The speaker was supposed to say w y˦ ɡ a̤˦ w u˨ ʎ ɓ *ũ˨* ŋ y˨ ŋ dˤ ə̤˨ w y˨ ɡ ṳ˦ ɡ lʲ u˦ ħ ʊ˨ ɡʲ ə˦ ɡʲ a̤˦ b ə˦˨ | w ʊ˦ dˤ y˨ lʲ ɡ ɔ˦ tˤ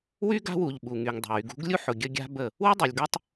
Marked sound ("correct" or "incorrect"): incorrect